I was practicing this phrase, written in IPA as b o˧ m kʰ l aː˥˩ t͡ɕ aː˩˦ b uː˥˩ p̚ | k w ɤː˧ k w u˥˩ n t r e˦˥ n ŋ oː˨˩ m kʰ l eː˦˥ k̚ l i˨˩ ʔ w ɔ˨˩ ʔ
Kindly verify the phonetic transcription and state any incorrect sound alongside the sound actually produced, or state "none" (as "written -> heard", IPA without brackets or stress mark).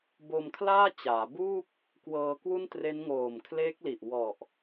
none